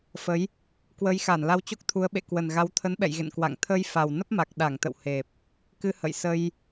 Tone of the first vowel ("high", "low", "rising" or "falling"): rising